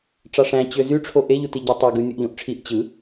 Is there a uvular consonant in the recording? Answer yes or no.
no